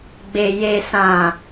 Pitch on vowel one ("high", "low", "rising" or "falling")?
low